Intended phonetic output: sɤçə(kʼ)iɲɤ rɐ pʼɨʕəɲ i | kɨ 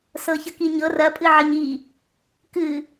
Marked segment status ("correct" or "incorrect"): incorrect